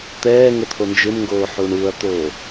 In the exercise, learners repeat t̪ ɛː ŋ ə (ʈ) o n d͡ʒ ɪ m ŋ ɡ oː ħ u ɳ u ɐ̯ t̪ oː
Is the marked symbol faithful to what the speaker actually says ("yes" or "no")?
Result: no